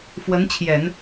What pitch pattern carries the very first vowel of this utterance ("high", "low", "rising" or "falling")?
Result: rising